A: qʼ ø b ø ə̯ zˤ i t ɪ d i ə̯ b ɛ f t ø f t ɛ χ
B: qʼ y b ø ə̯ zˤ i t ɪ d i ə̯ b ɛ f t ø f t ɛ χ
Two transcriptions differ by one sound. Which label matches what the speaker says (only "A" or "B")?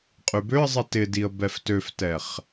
B